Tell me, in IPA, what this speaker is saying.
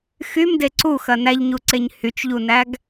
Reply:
xymde ǀuxɐ næʎɲuǀeɲ hyt͡ʃʎunæɡ

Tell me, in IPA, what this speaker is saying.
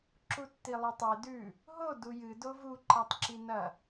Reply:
ǁutːilˠutˤe dʉ | ɦo dujɨ dovu ǃatˤǁinɐ

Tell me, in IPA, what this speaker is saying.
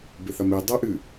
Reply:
beθɐmi dˤeʔɨ

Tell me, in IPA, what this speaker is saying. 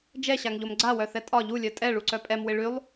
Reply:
d͡ʒɛɕaŋʎom ɡ͡ǀawœθɛ tʼɒ ʎulʲœ tʼɛɭuǀœ pʼɛmwɪ ɭylˠ

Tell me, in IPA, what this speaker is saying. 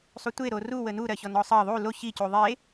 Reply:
sˤutʷe ɾoru wənu ɾɜçɔnɔsˤɜ ðˤu lo çi cuðˤe

